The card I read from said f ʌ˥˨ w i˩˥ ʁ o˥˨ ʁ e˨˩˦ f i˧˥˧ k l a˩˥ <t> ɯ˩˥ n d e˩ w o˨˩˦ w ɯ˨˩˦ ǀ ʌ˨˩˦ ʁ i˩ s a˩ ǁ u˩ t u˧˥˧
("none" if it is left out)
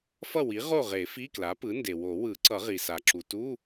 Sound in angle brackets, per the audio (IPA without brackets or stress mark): p